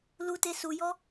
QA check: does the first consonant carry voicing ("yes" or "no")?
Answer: yes